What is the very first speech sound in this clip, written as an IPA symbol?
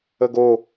ə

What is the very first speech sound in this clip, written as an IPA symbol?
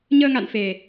ɲ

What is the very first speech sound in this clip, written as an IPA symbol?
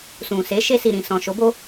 s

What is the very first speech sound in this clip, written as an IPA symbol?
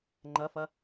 ŋ͡ǃ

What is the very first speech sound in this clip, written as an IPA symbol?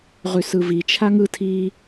ʁ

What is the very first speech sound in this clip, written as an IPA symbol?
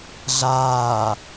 ɮ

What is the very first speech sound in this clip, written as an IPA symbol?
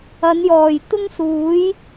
ɐ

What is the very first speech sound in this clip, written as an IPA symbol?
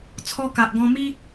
t͡sʰ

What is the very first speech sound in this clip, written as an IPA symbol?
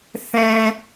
θ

